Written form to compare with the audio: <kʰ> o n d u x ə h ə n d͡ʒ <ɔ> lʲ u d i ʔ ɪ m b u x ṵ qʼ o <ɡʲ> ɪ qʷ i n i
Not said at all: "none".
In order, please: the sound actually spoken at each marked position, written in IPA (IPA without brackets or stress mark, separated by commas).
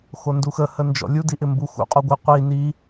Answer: x, ɔ̰, ɡʷ